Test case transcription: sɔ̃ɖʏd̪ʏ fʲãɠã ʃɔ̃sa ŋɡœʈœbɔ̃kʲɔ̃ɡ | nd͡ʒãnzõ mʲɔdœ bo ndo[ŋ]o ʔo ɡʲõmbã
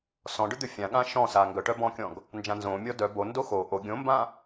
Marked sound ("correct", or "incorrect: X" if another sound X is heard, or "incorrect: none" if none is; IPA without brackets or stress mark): incorrect: x